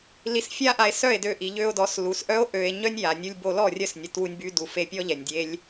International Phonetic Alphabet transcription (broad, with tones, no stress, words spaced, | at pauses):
li˧sfʲa˦ʔa˧e̯ sœ˦˨e̯dø˧ʔi˨ ʎø˧o̯dɔ˨˦s lu˨sʔœ˦o̯ ʔø˧e̯ ɲœ˦nʲja˨nʲu˧lʲ bo˧lɔ˦˨rʲœ˦˨snʲə˨ twu˧nʲby˧du˨fe˧ pʲɔ˦ʎɛ˨nʲdʲe˦lʲ